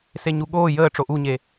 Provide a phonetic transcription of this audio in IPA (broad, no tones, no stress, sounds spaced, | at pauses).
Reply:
s e ɲ u ɠ oː j əː ʈ͡ʂ o ʔ u ɲ e